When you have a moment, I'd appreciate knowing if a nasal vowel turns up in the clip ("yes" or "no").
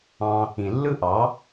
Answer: yes